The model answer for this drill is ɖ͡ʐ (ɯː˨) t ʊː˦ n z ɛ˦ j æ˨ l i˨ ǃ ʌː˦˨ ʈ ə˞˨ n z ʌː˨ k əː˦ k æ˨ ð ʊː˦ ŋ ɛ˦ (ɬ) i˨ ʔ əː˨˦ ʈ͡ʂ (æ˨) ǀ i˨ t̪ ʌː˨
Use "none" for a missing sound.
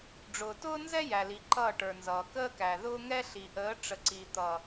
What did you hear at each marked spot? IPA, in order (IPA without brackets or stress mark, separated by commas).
ʊː˨, ɬ, ə˨